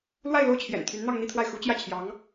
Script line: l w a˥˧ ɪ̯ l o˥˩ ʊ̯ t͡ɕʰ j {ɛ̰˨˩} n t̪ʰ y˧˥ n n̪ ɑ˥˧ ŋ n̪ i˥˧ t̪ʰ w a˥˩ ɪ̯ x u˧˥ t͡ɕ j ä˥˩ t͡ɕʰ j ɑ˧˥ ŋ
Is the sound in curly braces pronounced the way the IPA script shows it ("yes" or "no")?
yes